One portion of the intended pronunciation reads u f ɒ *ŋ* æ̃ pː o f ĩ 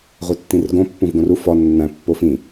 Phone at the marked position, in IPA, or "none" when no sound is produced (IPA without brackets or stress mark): nː